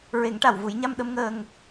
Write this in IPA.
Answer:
ɹ e˨˩˦ ŋ ʈ a˨˩˨ w v u˨˩˦ j ɲ a˧ m ɗ ə˧˥ m ŋ əː˧ ŋ

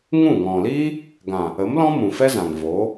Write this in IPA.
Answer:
ŋ ũ˦˨ ŋ ɔ̃˨ l iː˦ | ɡ ã˨ | ə˨˦ m l ɔ̃˦ m ũ˨ f ɛ˦ z ã˨ ŋ v o˨˦

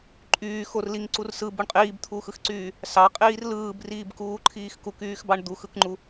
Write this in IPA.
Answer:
ǃʼ yː x o r l i ŋ ǀ u r s ɯ b u ɳ qʼ iː b t̪ʰ uː x ɯ x ǀ yː | s ɑ qʼ iː r l ɯː b r iː b k uː ǃʰ iː x k u k yː x b ɑ ɳ d̪ u x ɯ k ŋ͡ǃ u

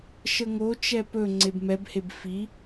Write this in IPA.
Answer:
ʃ ə ŋ o t͡ʃ ɛ p ɵ ŋ͡ǀ e b m ɛ b h e b f i

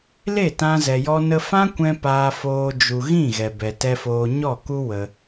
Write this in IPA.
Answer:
l e˦˨ t ã˧ z ɛ˨ j ɔ˧ n ə˧ f ã˦ kʷ ɛ̃˧ p aː˧ f oː˧ d͡ʒ u˨ ɣ ĩ˦˨ ɣ ɛ˨ b ɛ˨ t ɛ˧ f oː˧ ɲ ɔ˦˨ k u˦ w ə˧

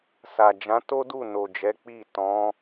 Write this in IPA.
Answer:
s a˨ d͡ʒ ã˨˦ t o˦ d u˦˨ n o˨ d͡ʒ ɛ˨˦ k͡p i˦˨ t ɔ̃˨˦

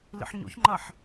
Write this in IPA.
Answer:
l ḭ ħ ɲ o̰ ç ŋ͡ǃ ɐ ħ

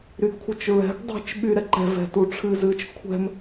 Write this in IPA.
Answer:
ɾ y ɡ kʷʰ ɨ t͡ʃ ɹ ɛ̤ ɡ dˤ ɛ̤ t͡ʃ ɓ y ɾ ɛ ǃ ɛ̤ v ɛ̤ t u ʈ͡ʂʰ ɨ z ɨ t͡ʃ kʷʰ ɛ̤ m

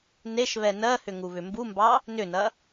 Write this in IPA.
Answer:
n e ʃ β ɛ n ɜ h ʏ ŋ u β ʏ m b u m b ɑ | n ʏ n ɐ

